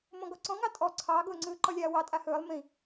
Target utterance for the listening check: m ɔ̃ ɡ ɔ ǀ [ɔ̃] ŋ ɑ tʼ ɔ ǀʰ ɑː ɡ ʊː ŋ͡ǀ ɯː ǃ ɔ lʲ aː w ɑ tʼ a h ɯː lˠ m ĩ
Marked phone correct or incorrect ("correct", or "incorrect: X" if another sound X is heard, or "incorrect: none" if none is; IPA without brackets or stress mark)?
correct